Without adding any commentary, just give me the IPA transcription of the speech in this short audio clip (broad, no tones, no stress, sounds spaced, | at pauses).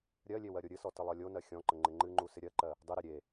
ɾʲ ɜ lʲ e w ɜ ɾʲ o ɾʲ ɨ s ɔ t ə lˠ ɜ lʲ o n ɜ xʲ ɔ̃ ǃ ə ŋ͡ǃ ɪ ŋ͡ǃ ɨ ŋ͡ǃ u s ɪ ɾʲ ɜ ǃ ɜ | dˤ ɨ ɾ e ɾʲ e